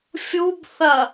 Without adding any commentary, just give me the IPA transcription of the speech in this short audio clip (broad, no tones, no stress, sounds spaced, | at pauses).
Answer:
fʲ u b θ ɐ